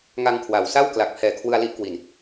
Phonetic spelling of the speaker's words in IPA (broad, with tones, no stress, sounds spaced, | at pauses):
ŋ a˧ ŋ kʰ w a˩˦ w s a˥˩ w k l a˨˩ k̚ pʰ ɛː˨˩ kʰ w ɯ˧ a̯ l i˦˥ ʔ k w i˨˩ n